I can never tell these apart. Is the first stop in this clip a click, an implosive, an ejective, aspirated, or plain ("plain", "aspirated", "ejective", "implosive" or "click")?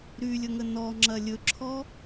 click